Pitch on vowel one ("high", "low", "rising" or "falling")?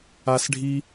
high